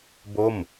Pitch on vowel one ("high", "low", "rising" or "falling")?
falling